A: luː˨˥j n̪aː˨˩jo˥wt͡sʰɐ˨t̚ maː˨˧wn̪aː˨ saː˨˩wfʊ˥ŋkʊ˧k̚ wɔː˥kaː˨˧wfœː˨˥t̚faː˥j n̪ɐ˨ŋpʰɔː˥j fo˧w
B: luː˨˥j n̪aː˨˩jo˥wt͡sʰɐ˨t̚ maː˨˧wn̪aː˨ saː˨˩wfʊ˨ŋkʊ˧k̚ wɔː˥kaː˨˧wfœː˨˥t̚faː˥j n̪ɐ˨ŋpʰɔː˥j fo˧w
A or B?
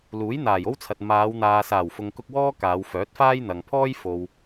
B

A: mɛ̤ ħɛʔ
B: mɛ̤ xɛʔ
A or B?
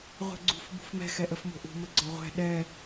B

